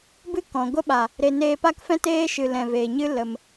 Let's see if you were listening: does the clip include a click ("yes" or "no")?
no